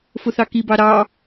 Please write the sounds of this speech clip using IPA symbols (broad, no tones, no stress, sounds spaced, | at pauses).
f ʊ θ ɑ k i b ɑ ɾ ɑ